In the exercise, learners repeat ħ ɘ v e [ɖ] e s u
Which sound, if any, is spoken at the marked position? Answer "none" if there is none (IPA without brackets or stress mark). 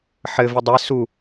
dˤ